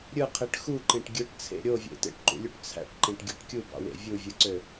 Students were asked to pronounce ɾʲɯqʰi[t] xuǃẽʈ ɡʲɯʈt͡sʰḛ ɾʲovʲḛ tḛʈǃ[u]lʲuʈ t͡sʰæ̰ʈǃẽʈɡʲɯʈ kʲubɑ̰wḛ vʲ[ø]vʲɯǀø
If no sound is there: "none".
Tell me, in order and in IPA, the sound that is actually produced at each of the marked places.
ʈ, ṵ, u

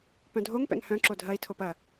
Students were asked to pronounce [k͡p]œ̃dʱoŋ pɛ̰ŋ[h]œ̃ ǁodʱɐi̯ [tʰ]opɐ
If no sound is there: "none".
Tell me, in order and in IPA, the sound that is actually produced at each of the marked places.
p, h, tʰ

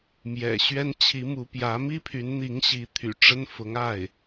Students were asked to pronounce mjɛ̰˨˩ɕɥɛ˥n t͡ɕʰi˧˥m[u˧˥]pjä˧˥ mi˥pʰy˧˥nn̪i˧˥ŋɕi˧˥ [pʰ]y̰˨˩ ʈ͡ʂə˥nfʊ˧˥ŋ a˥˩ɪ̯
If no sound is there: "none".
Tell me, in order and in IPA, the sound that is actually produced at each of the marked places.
u˧˥, t̪ʰ

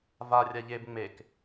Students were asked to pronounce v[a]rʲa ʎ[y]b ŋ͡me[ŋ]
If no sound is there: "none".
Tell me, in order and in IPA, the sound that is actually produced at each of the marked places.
a, e, k

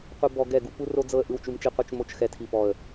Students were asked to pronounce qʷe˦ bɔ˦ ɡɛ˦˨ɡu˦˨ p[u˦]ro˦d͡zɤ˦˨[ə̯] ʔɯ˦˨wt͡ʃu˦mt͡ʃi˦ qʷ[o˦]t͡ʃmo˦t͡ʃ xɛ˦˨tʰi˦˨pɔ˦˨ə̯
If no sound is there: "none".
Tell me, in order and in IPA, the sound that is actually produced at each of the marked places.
u˦, ə̯, ɤ˦

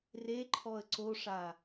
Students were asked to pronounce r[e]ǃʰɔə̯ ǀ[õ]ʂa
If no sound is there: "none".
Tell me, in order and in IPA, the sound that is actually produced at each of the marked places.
e, o

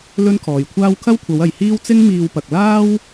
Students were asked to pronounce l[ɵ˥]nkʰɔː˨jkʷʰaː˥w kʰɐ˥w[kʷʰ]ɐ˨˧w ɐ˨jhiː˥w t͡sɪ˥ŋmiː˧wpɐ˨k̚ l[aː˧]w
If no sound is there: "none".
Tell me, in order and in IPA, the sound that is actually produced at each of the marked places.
ɵ˥, kʷʰ, aː˥

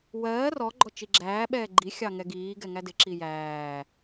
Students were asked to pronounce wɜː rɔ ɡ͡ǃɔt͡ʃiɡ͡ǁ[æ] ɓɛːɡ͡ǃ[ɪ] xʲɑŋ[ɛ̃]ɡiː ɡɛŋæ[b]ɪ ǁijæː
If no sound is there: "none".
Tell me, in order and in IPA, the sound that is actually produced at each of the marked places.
æː, i, ɛ, d

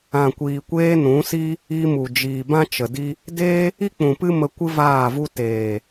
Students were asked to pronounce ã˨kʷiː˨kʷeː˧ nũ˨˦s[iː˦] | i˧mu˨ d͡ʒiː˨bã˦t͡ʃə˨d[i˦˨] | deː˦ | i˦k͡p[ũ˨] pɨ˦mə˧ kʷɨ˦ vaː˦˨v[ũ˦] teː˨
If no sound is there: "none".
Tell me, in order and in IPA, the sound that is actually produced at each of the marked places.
i˦, i˦, ũ˨, u˦

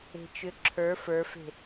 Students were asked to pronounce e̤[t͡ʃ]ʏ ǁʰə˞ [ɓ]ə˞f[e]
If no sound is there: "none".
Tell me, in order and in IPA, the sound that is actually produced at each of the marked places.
t͡ʃ, f, e̤

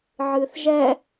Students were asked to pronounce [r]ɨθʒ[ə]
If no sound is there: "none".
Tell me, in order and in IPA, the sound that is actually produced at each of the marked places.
ʕ, ɛ

